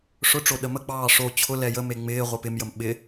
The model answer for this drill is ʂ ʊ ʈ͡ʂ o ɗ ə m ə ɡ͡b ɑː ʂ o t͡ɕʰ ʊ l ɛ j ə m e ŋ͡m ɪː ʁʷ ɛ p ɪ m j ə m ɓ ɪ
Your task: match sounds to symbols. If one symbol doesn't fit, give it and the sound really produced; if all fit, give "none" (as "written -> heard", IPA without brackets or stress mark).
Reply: none